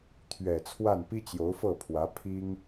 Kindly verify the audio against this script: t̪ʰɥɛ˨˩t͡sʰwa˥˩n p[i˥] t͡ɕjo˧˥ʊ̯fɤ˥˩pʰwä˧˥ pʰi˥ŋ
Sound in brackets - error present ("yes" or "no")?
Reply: no